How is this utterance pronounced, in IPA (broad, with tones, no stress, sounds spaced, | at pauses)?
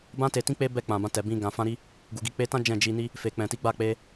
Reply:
b ã˧ t e˨ t ĩ˧ k͡p e˦ b ɛ˦˨ k͡p ã˨ b ã˧ t ɛ˨ b ĩ˧ ɡ ã˨ f ã˧ ɾ i˧ | ɡ u˨ ɡ i˧ k͡p e˧ t ã˦ d͡ʒ ɛ̃˦˨ d͡ʒ i˧ n i˦ | f e˨ k͡p ɛ̃˨ t i˨˦ ɡ͡b a˦˨ k͡p e˧